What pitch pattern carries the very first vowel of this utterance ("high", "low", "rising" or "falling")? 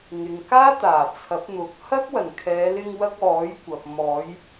low